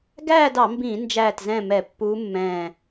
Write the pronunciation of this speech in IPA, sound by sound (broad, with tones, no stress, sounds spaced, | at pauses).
ɡ æː˥˨ d ɑ˧˩˧ m b ĩː˧˩˧ n d͡ʒ æː˧˩ t z ɛ̃˧˩ m ɛ˧˩˧ pː uː˧˥ mː ɛ̃ː˧˩